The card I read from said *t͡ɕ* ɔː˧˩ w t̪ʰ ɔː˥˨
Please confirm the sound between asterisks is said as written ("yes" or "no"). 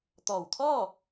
no